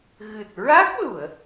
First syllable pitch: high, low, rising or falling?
low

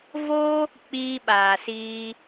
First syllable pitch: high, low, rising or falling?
high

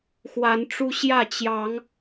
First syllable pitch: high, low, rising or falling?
rising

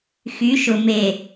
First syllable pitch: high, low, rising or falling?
rising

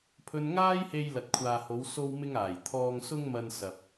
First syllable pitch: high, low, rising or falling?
high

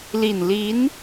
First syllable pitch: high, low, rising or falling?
low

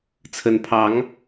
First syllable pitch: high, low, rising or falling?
rising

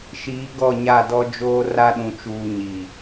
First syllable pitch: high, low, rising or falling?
rising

